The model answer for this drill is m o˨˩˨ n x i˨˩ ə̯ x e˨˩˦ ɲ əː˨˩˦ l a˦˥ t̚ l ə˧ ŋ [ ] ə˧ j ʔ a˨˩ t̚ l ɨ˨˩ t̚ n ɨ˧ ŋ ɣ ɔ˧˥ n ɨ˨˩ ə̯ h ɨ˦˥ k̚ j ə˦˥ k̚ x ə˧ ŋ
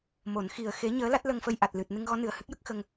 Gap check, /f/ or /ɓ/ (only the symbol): f